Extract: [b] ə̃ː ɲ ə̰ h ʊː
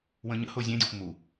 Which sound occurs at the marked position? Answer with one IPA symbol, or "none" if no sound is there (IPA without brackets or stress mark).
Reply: w